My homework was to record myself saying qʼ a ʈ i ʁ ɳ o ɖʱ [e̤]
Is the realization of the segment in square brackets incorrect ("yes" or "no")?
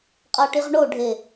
yes